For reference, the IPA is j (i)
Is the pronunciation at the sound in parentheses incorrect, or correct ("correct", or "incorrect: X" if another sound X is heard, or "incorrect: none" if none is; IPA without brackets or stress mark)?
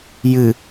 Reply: incorrect: ɨ